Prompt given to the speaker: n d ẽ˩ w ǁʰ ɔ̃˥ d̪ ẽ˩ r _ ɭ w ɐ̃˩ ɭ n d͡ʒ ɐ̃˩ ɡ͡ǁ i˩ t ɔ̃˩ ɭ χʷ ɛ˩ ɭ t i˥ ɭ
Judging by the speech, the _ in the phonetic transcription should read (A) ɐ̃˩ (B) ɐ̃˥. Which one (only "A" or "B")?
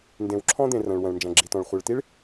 A